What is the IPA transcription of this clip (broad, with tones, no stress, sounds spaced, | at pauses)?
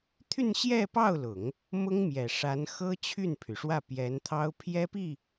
t̪ʰ y˥˧ n ɕ j ɛ˥˧ p ɑ˥˩ ʊ̯ l ʊ˨˩˦ ŋ | m ʊ˥ ŋ m j ɛ˨˩ ʂ a˧˥ n x ɤ˥ t͡ɕʰ y˥˩ n pʰ y˩ ʂ w ä˥˩ p j ɛ˧˥ n t̪ʰ ɑ˥ ʊ̯ pʰ j ɛ˥ p i˥˩